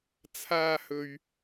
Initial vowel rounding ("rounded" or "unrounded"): unrounded